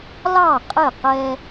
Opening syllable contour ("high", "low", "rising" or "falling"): falling